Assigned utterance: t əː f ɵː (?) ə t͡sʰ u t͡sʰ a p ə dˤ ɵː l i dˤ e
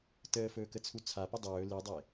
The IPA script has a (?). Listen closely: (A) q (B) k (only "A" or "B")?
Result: B